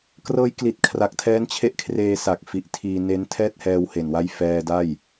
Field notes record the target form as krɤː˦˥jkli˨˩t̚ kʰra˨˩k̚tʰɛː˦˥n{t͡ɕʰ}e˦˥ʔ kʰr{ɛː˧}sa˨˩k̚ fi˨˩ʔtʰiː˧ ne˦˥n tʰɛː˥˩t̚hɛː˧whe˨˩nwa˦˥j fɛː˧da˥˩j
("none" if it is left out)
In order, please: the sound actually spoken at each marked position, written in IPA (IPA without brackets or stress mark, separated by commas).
t͡ɕʰ, eː˧